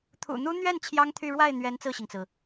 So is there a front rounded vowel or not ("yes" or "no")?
yes